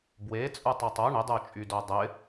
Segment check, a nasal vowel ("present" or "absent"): absent